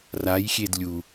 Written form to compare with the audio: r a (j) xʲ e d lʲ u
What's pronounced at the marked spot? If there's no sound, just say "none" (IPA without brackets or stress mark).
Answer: j